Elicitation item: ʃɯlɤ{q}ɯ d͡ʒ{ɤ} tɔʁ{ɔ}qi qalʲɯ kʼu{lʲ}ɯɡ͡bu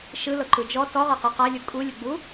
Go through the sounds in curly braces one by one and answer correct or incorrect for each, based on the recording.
incorrect: ǃ, incorrect: ɔ, incorrect: ɤ, correct

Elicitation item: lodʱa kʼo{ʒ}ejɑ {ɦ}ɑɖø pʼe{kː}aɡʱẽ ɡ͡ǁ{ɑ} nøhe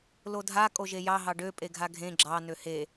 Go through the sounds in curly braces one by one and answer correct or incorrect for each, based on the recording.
correct, correct, incorrect: ɡʱ, correct

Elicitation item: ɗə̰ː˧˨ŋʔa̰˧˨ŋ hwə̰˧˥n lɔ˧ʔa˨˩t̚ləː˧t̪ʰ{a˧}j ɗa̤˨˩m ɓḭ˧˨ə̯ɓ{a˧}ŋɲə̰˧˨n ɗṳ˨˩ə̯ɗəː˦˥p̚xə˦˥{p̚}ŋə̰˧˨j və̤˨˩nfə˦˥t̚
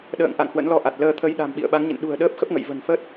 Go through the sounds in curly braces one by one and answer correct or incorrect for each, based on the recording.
incorrect: ə˧, incorrect: a˨˦, correct

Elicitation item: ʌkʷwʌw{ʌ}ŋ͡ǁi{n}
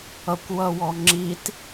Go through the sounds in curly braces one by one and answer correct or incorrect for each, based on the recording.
incorrect: ɔ, incorrect: t

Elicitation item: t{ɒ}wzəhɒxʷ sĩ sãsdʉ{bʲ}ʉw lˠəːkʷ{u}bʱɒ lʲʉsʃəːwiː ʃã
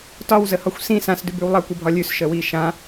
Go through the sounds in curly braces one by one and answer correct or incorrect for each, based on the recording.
correct, incorrect: b, incorrect: ɯ

